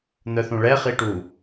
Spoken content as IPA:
n̪œθũɭɛ χiʈu

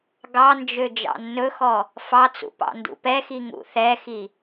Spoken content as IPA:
ɡɑnd͡ʒø d͡ʒɑ̰nːɵxɔ | fɑt͡sṵ pɑ̰ndṵpɛxi ŋṵθɛxi

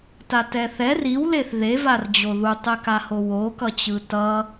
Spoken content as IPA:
tatɛθɛr iwleθ ðevard͡ʑo ðutˤɛkaho wokʌt͡ɕɯ tʌ

